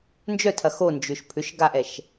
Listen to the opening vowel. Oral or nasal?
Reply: oral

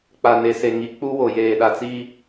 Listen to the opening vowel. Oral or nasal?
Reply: oral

